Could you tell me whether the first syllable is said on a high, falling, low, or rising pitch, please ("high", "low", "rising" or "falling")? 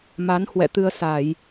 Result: rising